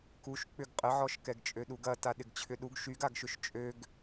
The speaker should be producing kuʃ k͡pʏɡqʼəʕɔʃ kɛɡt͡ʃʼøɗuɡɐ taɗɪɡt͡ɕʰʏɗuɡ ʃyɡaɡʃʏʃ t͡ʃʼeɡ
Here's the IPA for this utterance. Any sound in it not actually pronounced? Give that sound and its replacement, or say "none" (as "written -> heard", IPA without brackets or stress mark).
e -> ø